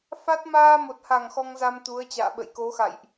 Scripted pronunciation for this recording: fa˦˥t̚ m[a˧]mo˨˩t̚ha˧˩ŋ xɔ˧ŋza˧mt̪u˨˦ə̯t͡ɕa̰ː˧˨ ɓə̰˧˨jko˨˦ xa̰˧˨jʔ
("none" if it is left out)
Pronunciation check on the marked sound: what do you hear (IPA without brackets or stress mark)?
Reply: aː˧